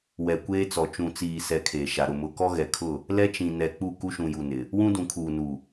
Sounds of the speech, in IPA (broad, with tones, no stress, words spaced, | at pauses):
wɛ˨kʷeː˦t͡sɔ˨ t͡ʃũ˨t͡siː˨sɛ˨ kʰeː˨ʃa˨ɾʊ˦˨ mʊ˨kɔ˦ɣɛ˨kʰʊ˦˨ | lɛ˦t͡ʃĩ˨ nɛ˨k͡pu˦˨ ku˦ʃũ˨ju˨ nɪ˨ | wũ˦dũ˨kʰuː˨nu˨